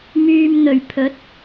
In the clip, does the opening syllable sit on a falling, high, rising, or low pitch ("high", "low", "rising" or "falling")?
low